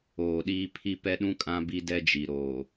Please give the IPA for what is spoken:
oː˨ ɗ iː˦ pʰ i˦˨ p ɛ˦ ɗ ũ˦ kʼ ã˦ b i˦ d ɛ˦ d͡ʒ i˨ ɾ oː˨

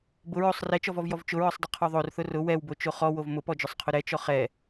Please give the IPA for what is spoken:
b ʊ ɹ o sˤ r ɛ t͡ʃ ɔ v ɔ v j ɔ v t͡ʃ ʊ ɹ ɔ sˤ dˤ ʊ qʰ ɔ ðˤ o r θ ʊ r ʊ w ɛ w b o t͡ʃ o χ ɔ w o v m ʊ p ɔ d͡ʒ ʊ sˤ qʰ ʊ ɾ ɛ t͡ʃ ɔ χ ɛ

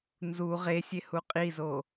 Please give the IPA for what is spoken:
n z u ʁ e sʲ e h u qʼ i z o

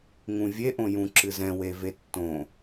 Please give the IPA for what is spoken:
ŋ ũ vʲ e ʔ õ j ũ ǁ ɨ z ɛ̃ w e v e tː õ

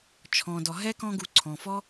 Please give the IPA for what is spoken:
t͡ʃʰ ɔ̃˩ d ɔ˩ ɦ ɛ˥ k ɔ̃˦ ɡ u˨ ǀʰ ɔ̃˩ f ɔ˥

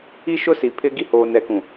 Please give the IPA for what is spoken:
i˦ ʃ ʊ˦ s i˨ pʰ ɪ˦ ɡ i˦ h oː˨ n ɛ˨˦ k ũ˨

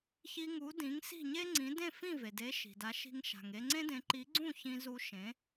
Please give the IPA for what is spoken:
ç i˧ ŋ u˩˥ d ĩ˩˥ ŋ s i̤˥˩ ɲ e˥ ŋ͡ǀ ĩ˩˥ d ẽ˥˩ f ĩ˥˩ v e˩ d e˩˥ ʃ i̤˩ d a˩˥ ʃ i̤˧ ŋ ʃ a̤˩ ŋ e˧ ŋ͡ǀ ẽ˥ d ẽ˩˥ ǃ i˩˥ ɡ͡ǀ ũ˥˩ ç ĩ˧ z u˧ ʃ ẽ˩˥

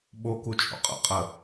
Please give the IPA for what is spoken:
ɓ o k u t͡ʃʼ o̰ qʼ ə̰ qʼ ə

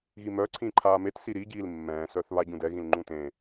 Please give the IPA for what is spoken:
ɣ i m œ ǀʰ ĩ ǃʰ aː m e t s i ɾ i ɟ iː l mː ɛ̃ː s œ θ β a ɟ ũ d ɛ ɣ ĩ l ŋ͡ǃ ũ t ẽ

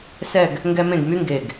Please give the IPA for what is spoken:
s ɛ˥˧ ɡ | ŋ ɡ ɛ˥ m ẽ˥˧ ɡ m y˥ ŋ ɡ e˧˩ ɡ

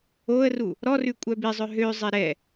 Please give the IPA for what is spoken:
o ə̯ r u | ɾ ɔ r ʉ kʷʼ œ b i zˤ œ ɦ ø zˤ e ɾ ɛ

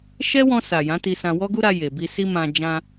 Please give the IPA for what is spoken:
ʃ ɛ˦ w ɔ̃˧ s a˨ j ã˨˦ t i˧ s ã˧ w ɔ˦ ɡ u˦ ɾ a˧ j e˨ b i˧ s i˦ m ã˧ d͡ʒ ã˧

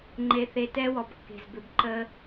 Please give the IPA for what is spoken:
ŋ͡ǃ e˧ θ e˧ t ɛ˦ w ɔ˨ b kː e̤˨ z b ʏ˨ b ǃ ə˦

